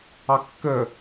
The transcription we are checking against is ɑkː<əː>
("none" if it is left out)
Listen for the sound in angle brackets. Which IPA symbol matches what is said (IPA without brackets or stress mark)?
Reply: əː